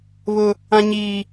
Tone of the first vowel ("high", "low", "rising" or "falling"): high